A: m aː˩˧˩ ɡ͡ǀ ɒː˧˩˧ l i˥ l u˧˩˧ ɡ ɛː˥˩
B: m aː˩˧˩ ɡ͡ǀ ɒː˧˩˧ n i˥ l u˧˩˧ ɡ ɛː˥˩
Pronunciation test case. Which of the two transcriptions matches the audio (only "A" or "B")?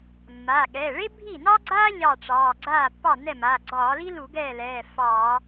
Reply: A